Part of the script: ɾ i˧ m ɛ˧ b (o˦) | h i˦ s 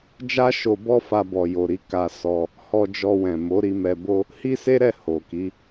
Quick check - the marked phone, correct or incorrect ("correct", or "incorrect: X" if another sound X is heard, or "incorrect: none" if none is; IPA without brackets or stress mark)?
correct